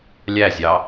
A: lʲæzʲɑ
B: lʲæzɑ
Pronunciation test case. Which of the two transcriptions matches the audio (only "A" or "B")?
A